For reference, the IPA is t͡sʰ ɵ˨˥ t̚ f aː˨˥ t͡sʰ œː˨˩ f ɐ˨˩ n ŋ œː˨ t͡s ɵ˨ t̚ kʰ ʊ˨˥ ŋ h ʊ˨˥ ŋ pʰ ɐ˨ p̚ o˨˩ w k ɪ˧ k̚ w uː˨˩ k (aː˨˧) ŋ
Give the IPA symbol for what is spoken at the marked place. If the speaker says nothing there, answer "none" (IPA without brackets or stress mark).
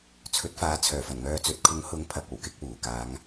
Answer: aː˨˧